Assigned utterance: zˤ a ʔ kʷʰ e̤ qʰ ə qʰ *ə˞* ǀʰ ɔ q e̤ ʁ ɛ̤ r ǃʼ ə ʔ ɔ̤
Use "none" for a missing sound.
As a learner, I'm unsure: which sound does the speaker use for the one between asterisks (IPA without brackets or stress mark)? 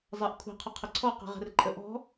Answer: ə